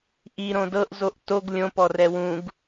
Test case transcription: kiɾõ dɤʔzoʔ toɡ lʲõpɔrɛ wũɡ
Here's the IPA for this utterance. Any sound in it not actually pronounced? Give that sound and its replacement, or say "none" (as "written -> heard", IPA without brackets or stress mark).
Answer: k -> ʔ